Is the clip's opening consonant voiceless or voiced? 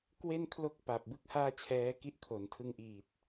voiceless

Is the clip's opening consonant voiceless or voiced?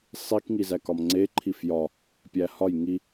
voiceless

